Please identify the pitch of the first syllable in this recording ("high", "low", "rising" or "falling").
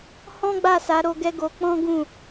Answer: high